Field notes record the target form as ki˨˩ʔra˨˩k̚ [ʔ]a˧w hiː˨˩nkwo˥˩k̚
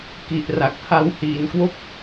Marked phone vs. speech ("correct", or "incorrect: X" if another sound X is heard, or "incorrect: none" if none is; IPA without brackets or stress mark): incorrect: h